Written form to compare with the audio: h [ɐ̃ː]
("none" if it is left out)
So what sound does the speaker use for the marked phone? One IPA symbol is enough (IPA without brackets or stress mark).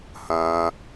ɐ̃ː